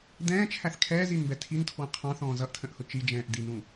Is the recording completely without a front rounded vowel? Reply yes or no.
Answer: yes